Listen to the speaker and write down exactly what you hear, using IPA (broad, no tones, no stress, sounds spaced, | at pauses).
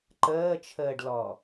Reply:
ǃ əː t͡ʃʰ əː ɖ l ɔ